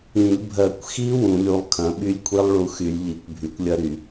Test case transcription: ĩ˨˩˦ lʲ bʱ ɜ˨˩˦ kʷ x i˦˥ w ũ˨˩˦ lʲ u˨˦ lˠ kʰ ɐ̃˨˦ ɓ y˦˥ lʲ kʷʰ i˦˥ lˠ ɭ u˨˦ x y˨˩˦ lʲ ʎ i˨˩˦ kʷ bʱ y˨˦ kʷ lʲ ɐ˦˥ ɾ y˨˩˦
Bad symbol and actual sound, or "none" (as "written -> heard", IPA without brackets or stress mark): none